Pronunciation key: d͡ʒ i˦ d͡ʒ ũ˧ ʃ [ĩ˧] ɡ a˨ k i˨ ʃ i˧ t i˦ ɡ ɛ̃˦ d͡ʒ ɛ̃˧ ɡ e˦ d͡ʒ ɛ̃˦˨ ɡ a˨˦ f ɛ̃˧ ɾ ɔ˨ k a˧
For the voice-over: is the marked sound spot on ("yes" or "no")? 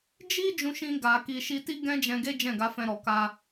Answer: yes